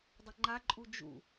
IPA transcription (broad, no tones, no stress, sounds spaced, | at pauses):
dˤ ə ŋ͡ǃ a ǃʼ u d͡ʒ ṵ